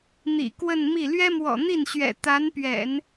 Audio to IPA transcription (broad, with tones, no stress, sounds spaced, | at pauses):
n̪ ḭ˨˩ k w ə˥˧ n m i˥˩ l ɥ ɛ˥ m w ɔ̰˨˩ n̪ i˥˩ n ɕ ɥ ɛ̰˨˩ t̪ a˧˥ n p ɥ ɛ̰˨˩˦ n